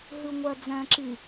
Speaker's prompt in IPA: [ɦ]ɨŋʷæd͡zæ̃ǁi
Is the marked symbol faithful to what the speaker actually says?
yes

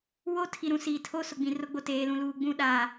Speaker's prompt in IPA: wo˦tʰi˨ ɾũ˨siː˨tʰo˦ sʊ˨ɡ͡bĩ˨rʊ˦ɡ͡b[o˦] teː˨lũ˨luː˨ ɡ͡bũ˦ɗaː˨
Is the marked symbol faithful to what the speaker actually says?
no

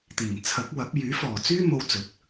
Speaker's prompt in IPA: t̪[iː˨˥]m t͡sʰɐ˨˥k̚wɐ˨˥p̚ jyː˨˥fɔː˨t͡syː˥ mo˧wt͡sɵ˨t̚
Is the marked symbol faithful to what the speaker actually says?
no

